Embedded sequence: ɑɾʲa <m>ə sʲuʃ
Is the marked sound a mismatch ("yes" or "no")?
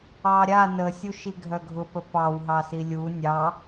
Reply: yes